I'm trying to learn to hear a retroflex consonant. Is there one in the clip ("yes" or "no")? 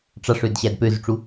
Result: yes